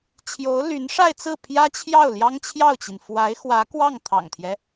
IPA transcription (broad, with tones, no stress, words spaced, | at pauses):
t͡ɕʰjo˧˥ʊ̯ly˧˥nʂa˥˧ɪ̯t͡sɹ̩˥˩ pʰjä˥t͡ɕʰjɑ˥˩ʊ̯ ljɑ˥ŋt͡ɕʰjɑ˥˩ʊ̯t͡ɕi˩n fwa˧˥ɪ̯xwä˧˥ kwɑ˥˩ŋt̪ʰɑ̰˨˩ŋt̪ʰjɛ˦